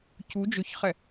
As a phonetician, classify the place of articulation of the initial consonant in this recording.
palatal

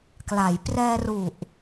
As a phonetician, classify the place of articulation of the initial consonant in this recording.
velar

